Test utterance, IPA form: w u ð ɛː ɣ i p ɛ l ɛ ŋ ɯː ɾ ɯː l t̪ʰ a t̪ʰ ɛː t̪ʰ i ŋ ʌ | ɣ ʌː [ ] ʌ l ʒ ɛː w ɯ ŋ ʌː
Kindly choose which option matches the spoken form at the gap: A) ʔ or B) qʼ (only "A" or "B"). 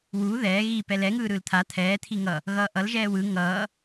A